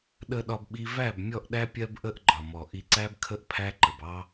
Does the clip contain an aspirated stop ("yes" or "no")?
yes